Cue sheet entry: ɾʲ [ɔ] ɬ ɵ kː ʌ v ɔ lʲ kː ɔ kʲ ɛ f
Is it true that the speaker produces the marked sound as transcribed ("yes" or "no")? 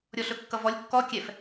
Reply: yes